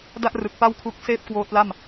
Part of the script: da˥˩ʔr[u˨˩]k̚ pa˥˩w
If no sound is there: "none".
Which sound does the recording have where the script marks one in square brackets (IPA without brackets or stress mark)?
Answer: ɯ˨˩